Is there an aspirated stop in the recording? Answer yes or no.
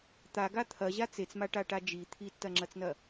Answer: yes